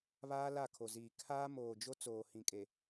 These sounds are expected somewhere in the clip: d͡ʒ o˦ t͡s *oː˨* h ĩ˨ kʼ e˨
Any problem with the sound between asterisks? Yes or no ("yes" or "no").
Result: no